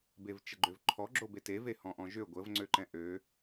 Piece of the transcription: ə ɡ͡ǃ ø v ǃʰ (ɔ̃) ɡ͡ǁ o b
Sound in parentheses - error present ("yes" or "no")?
yes